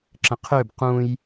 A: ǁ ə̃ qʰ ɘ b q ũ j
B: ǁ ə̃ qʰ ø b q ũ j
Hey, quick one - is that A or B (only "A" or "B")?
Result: B